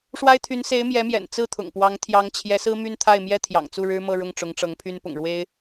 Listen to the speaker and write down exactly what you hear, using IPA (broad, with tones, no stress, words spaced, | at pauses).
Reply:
ʂwa˥ɪ̯t̪ʰy˧˥n se˧˥ɪ̯mjɛ˧˥mjɛ̰˨˩n t͡sɹ̩˥˩t̪ʰʊ̰˨˩ŋpwɑ˧˥ŋ t̪ʰjɑ˧˥ŋt͡ɕʰjɛ˧˥sɹ̩˥ my˥˧nt̪ʰa˥˩ɪ̯mjɛ˥ t̪ʰjɑ̰˨˩ŋt͡su˥˩ɻɻ̩˥mɤ˥˧ ɻʊ˥˩ŋʈ͡ʂʊ˧˥ŋʈ͡ʂɤ˧˥ŋpʰy˥n pʊ̰˨˩ŋɻwe˥ɪ̯